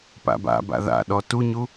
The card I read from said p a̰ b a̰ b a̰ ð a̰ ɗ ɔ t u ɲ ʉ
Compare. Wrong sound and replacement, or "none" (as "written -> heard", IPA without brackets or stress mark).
ʉ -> u